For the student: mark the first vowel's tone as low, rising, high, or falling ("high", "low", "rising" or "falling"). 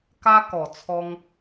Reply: high